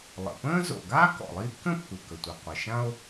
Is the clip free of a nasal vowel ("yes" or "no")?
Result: no